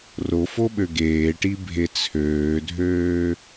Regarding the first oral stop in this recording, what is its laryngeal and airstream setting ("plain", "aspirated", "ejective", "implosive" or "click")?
implosive